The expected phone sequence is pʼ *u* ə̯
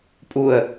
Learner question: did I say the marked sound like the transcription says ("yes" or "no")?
yes